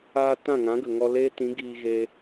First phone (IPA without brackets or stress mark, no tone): aː